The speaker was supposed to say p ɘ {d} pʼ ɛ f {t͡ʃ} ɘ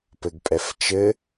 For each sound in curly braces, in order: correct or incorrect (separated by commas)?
incorrect, correct